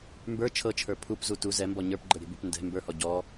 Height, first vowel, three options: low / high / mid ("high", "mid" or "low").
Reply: mid